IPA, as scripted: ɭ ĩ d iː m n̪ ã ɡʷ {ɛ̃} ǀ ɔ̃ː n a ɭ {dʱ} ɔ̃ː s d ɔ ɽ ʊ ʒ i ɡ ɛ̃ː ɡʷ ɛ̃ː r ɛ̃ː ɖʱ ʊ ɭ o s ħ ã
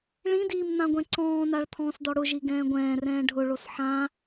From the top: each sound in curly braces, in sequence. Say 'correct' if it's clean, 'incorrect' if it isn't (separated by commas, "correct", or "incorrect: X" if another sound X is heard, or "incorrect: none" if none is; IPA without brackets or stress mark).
correct, incorrect: t̪ʰ